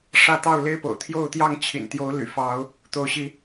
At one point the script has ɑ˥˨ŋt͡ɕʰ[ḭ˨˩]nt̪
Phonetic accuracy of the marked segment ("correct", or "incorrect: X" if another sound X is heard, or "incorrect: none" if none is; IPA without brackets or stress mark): correct